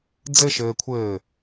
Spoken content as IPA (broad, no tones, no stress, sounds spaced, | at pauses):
d͡z ɘ ʃ ɘː kʷʰ ɘː